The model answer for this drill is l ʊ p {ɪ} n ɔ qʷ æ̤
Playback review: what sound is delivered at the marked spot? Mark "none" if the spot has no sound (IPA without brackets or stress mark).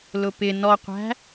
ɪ